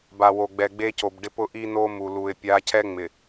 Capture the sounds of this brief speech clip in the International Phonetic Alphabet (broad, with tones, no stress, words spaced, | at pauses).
ba˨wo˨ɡ͡bɛ˨ ɡ͡be˦co˨bɖɪ˦ pʊ˦ʔi˦no˦ mu˨lu˨ɪ̯ pʲa˨˦cʰɛ˦ ŋ͡mɪ˨